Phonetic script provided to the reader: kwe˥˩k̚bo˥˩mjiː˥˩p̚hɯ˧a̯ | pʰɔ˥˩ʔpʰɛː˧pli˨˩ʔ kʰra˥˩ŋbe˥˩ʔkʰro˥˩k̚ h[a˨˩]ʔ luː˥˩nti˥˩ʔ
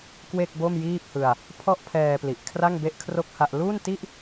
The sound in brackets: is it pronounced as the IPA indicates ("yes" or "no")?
no